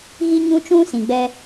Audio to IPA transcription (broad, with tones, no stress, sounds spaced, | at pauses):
ɣ i˦ ɲ ũ˦ t͡ʃ ũ˦ s ĩ˨ ɡ͡b ɛ˦